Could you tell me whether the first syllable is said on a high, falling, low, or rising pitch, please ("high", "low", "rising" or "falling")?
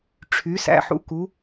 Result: rising